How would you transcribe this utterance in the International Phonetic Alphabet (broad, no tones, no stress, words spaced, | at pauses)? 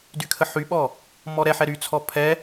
dykʰəħyɓɔ | mɔɾɛħɛ ɾyt͡sʰɔ pʰɛ